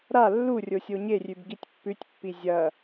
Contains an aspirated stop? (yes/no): no